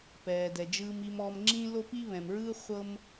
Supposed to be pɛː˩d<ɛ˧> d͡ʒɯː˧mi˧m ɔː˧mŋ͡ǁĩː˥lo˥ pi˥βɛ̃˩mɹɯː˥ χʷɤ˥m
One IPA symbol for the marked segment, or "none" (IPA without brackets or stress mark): ɛ˩